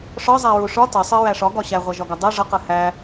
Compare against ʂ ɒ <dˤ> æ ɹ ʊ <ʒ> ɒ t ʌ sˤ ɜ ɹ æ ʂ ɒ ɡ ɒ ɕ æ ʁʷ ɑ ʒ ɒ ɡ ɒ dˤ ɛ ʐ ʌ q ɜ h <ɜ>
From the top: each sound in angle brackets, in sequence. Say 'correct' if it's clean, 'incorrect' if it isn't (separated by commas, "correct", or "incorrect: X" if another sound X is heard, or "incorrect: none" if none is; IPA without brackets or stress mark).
incorrect: zˤ, incorrect: ʂ, incorrect: æ